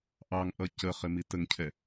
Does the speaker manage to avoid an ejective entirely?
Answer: yes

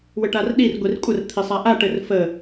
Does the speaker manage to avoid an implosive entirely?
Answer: no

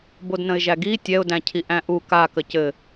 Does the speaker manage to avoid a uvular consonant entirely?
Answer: yes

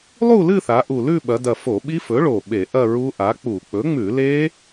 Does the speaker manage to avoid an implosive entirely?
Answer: no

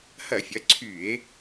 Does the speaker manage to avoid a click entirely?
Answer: no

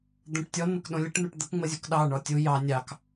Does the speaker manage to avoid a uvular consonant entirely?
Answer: yes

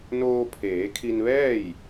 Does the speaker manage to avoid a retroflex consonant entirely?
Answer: yes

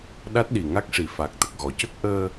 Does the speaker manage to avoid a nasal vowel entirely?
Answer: yes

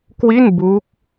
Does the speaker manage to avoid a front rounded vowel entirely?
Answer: yes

